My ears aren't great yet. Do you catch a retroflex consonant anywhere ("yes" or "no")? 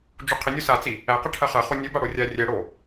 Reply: yes